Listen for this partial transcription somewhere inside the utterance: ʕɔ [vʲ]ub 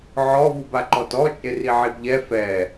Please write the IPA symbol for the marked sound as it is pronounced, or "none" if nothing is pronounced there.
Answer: v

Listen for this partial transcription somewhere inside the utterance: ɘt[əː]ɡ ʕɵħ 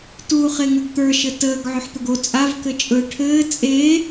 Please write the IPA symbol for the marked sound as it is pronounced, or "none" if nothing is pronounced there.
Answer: əː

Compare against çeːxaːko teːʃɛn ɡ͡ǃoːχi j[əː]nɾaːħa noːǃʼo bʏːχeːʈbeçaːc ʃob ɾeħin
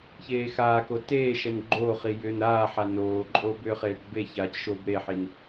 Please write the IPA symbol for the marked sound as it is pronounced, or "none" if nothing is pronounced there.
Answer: ʏː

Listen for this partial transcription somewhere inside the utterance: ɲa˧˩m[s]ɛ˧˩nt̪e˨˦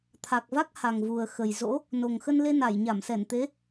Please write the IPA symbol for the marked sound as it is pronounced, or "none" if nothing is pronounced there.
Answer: s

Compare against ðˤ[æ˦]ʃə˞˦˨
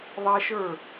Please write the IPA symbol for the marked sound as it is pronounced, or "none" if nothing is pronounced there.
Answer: æ˦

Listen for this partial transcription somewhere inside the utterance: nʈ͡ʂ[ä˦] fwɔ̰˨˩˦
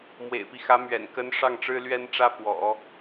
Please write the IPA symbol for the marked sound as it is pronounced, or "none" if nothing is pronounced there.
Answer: ä˥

